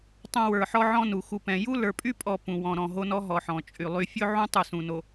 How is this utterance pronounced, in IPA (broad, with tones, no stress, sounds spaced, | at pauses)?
tˤ õ˨ w ə˞˨ ħ ɔ˦ ʕ ɔ̃˦ n u˨ x u˨ p ɛ̃˨ j u˦ l ə˞˨ pʼ y˦ pʼ ɔ˨ p ũ˨ w ɔ̃˨ ɾ ɔ̃˨ ɦ o˦ n ɔ˦ ɦ ɔ˨ ħ ɔ̃˨ t͡ʃʼ y˨ lˠ y˦ fʲ ɵ˦ ʕ ũ˦ tˤ u˦˨ s ũ˨ n o˨